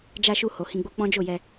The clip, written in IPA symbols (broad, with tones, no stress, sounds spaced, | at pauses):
d͡ʒ a˧ ʃ u˧ h o˨ h ĩ˧ ɡ͡b o˧ k͡p ɔ̃˦ d͡ʒ o˦˨ j ɛ˧